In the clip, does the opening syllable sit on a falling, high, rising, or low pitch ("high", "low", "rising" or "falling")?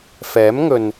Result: rising